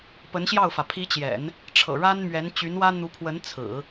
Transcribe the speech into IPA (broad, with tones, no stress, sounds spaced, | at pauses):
p ə˧˥ n ɕ j ɑ˥˩ ʊ̯ f ä˩ pʰ i˧˥ t͡ɕ j ɛ̰˨˩˦ n | ʈ͡ʂʰ ɤ̰˨˩ ɻ a˥ n m ɥ ɛ˧˥ n t͡ɕ y˧˥ n w ä˥ n̪ u˧˥ pʰ w ə˧˥ n t͡sʰ ɹ̩˨˩˦